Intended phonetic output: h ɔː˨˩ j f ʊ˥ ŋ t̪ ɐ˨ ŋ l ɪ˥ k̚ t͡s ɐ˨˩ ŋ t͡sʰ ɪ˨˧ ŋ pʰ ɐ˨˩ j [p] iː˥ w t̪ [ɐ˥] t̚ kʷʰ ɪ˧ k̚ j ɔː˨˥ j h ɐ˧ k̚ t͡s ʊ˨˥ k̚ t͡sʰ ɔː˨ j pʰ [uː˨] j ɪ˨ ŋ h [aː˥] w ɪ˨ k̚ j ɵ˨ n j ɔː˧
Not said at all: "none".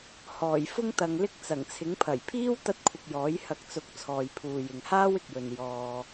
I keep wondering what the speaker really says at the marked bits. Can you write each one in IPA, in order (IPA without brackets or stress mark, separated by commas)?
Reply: pʰ, ɐ˥, uː˨, aː˥